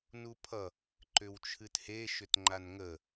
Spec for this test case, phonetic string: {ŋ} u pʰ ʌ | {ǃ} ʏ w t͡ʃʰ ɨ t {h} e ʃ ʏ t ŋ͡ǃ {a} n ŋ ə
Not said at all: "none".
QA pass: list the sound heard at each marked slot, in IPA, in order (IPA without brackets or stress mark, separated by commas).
n, ǃ, h, a